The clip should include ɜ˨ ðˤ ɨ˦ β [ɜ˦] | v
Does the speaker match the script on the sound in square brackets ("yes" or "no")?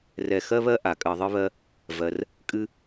yes